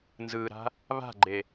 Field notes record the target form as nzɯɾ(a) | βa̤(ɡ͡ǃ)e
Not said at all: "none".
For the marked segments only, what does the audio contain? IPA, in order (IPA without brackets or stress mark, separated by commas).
a̤, ɡ͡ǃ